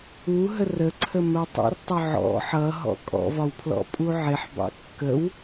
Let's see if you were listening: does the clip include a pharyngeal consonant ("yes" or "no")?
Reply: yes